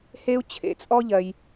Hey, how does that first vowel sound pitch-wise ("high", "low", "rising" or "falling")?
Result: high